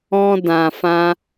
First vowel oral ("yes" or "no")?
no